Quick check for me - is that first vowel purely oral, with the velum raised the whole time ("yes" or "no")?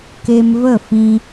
yes